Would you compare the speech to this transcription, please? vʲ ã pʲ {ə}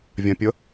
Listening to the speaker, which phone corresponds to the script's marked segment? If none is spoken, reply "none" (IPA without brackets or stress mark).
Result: ə